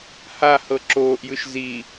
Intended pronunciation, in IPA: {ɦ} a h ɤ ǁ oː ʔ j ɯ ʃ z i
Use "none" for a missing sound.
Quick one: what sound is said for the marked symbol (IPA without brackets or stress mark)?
h